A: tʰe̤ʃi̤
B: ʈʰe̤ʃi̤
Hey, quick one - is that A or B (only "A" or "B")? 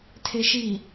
A